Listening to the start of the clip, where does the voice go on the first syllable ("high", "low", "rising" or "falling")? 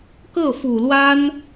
falling